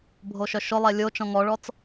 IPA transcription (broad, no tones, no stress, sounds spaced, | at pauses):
bʱ o ʃ œ ʃ ʊ lˠ ɛ lʲ o t͡ʃ ɔ̃ ŋ ɔ ɭ ɔ t͡s